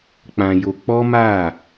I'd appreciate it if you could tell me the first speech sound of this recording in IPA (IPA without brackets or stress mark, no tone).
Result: k͡p